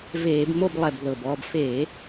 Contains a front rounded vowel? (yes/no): no